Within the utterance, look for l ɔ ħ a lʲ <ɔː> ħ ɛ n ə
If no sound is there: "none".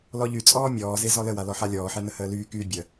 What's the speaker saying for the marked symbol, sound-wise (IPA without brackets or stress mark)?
ɔː